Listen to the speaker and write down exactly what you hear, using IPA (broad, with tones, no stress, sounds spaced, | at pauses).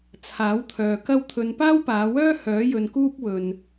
t͡sʰ aː˨˥ w t̪ʰ œː˨ k ɐ˥ w t̪ʰ ɵ˧ n p aː˥ w p aː˨˧ w œː˥ h œː˨˥ j ɵ˨ n k uː˥ p̚ w ɵ˨ n